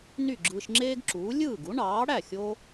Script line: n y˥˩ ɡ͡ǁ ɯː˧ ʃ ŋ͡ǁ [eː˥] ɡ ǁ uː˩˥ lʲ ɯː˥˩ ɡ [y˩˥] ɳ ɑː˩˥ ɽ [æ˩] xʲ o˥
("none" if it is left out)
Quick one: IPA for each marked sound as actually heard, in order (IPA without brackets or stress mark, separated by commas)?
eː˥, u˩˥, æ˥˩